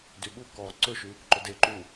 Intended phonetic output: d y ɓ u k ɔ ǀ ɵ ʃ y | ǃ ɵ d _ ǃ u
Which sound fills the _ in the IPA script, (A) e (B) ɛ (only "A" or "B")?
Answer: A